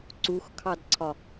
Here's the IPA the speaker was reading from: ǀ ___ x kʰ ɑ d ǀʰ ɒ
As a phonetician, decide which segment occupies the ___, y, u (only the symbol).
u